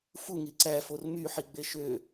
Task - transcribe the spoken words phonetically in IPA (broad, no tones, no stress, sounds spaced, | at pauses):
f u ŋ i ǀ æ f o r m y ħ i ɡ͡b e ʃ ø